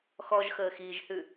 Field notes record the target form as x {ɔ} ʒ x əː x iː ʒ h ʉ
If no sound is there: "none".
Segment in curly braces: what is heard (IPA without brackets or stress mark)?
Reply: ɔ